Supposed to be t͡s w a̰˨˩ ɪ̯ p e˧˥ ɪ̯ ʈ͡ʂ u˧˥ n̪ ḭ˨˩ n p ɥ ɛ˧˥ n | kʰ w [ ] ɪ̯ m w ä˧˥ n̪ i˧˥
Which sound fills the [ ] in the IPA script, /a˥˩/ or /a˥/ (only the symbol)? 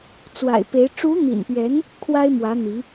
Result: a˥